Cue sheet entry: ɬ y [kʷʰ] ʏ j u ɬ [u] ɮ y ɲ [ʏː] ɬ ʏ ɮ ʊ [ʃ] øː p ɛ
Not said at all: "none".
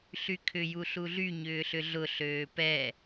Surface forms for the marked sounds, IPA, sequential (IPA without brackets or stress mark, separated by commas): kʰ, u, ʏː, ɬ